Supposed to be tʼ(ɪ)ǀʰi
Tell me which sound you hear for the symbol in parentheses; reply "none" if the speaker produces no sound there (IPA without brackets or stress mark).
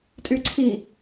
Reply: y